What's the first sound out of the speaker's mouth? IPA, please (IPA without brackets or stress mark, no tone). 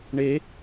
ɳ